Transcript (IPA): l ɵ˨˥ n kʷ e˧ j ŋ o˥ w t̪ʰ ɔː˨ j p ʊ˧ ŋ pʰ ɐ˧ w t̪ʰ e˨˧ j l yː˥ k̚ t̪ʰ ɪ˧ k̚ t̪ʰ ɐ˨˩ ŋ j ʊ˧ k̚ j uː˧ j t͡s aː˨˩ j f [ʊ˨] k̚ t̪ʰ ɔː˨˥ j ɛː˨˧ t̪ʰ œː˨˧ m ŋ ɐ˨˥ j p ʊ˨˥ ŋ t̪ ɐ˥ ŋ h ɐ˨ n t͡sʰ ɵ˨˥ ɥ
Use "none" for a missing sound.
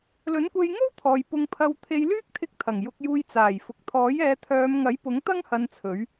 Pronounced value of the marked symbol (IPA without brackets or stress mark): ʊ˨